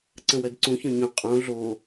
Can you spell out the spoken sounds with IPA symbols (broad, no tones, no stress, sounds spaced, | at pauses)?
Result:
ǀ ə̃ w ɜ d ǀ ũ ç ɔ̃ ɲ õ qʼ õ ɮ o